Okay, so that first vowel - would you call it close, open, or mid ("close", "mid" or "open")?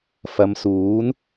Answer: open